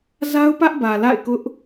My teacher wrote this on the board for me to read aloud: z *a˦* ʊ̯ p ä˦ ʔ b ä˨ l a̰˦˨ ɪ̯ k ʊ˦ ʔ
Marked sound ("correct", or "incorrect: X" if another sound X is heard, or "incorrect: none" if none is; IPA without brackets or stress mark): correct